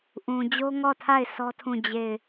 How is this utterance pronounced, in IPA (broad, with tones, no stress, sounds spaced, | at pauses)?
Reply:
ʔ ũ˨ d͡ʑ o˦ ŋ ɔ˦˨ tʰ a˦˨ ɪ̯ s ɔ˦ tʰ ũ˦˨ d͡ʑ e˦˨ ɪ̯